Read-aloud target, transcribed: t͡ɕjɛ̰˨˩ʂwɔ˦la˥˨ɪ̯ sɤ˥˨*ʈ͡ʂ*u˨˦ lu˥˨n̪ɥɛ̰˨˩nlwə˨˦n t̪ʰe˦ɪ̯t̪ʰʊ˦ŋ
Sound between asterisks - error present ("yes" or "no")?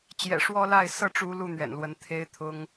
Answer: no